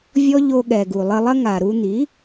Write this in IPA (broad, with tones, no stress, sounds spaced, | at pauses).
vʲ ɔ˦ ʎ o˧ ɠ ɛ˨ ɡ u˨ lˠ ɘ˧ lˠ ɐ˦ ŋ a˨ ɾ u˧ n̪ i˨˦